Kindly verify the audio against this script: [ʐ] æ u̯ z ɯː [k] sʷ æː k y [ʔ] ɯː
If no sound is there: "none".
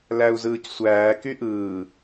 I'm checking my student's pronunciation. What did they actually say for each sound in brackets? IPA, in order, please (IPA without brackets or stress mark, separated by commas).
l, c, ʔ